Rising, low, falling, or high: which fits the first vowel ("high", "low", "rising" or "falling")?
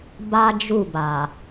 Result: high